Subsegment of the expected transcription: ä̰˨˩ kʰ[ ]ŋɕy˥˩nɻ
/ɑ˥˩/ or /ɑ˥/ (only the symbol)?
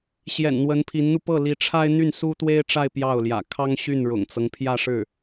ɑ˥